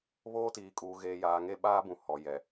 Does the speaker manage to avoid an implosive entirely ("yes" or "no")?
no